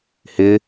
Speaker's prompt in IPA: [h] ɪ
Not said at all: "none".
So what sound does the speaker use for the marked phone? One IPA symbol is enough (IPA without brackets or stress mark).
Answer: h